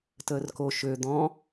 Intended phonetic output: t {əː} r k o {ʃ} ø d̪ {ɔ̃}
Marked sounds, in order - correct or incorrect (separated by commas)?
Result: correct, correct, correct